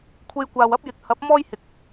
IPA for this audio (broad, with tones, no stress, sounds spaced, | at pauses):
kʷʰ e˧ j kʷ aː˨ w ɐ˥ p̚ j ɪ˨˥ k̚ h ɐ˨˥ p̚ m ɔː˥ j h ɪ˨ k̚